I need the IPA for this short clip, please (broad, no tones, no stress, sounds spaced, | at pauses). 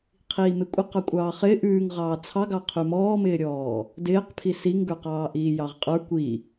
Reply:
qʰ iː m ɪ kʷʼ ɪ q ɑ kʷʼ ɑː χ ɪː ʔ ʉː ŋ ʁ ɑː t͡sʰ ɑ ɡ ɑ qʰ ʉ m ɔː m ɪː ɾʲ ɔː | d ɪː q pʰ i s i ŋ ɡ ə˞ q ɑː ʔ iː j ɑ ʁ qʼ ə˞ kʷ i